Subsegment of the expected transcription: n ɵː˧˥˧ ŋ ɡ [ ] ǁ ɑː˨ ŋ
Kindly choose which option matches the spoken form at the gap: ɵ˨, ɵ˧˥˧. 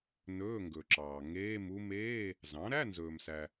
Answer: ɵ˨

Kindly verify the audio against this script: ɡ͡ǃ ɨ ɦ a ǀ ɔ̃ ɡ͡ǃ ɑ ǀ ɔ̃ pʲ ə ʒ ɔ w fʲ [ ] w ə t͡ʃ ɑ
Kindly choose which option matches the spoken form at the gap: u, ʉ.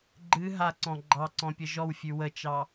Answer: ʉ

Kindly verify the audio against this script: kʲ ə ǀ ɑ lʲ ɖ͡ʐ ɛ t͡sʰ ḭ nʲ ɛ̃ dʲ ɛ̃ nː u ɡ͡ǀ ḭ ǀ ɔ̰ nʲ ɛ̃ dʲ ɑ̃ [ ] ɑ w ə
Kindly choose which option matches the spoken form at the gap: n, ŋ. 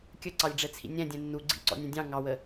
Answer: ŋ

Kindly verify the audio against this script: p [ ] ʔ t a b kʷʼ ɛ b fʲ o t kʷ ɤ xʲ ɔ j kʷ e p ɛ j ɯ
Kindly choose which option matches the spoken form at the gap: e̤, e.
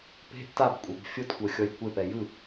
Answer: e̤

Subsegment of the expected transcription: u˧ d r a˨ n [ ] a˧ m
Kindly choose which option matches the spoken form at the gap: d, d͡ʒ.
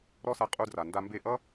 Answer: d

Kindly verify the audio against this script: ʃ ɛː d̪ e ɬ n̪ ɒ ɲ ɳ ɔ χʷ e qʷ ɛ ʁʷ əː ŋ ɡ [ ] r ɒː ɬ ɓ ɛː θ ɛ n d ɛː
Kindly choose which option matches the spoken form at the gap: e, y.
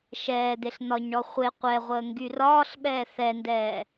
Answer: y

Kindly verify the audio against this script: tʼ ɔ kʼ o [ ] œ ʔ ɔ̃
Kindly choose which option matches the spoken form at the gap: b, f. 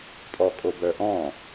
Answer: b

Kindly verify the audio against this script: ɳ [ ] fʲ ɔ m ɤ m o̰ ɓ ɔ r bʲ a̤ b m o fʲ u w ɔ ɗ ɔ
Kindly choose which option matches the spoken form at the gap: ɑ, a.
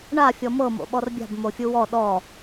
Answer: a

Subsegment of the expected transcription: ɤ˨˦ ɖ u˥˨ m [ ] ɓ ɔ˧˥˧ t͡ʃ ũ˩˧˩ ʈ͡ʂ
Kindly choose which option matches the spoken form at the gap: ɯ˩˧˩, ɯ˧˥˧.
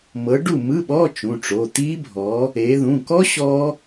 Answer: ɯ˧˥˧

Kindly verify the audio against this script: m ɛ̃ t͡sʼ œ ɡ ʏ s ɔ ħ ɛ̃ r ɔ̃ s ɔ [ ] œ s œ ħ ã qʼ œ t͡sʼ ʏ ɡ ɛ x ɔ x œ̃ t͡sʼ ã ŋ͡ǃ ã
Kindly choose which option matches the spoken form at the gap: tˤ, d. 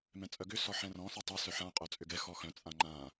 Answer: tˤ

